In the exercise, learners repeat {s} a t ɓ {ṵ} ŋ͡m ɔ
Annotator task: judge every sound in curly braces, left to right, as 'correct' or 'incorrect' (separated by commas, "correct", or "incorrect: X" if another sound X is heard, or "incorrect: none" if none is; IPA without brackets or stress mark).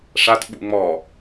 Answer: incorrect: ʂ, correct